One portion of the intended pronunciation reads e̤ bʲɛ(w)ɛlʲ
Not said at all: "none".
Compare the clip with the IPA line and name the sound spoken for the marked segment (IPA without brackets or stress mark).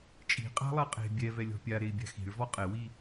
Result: v